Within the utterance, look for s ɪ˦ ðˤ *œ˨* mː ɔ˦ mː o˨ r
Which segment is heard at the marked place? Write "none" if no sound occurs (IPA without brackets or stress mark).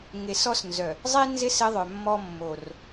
œ˨